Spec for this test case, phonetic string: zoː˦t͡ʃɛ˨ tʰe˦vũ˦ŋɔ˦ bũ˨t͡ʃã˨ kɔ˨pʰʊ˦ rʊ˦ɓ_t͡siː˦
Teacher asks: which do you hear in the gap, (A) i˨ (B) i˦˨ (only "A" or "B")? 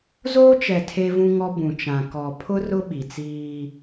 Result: A